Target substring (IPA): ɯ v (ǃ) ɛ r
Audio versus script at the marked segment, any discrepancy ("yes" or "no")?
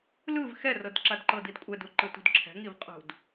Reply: yes